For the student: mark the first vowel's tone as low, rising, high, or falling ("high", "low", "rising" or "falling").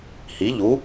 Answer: rising